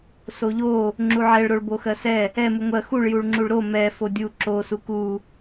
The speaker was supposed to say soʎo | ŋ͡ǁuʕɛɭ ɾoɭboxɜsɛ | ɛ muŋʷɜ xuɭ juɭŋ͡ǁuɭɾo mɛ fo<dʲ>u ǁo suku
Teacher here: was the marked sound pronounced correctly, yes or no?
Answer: yes